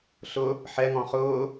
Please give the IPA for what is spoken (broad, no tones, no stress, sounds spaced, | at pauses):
ɬ ʊ | ħ ɛ ŋ ɔ̃ χ ʊː